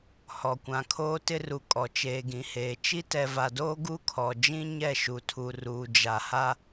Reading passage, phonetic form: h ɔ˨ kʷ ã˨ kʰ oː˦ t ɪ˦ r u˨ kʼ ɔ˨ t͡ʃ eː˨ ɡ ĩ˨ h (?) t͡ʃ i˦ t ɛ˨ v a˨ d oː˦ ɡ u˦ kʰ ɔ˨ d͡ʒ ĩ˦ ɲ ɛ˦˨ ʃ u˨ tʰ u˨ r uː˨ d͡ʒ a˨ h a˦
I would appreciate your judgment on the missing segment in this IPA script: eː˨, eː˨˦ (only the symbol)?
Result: eː˨